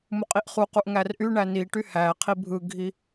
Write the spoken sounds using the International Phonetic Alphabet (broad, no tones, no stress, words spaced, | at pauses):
muqʼiʔχuquʔ ŋærʔyɳæ niʈy hæqʰi bʱɯɡʱi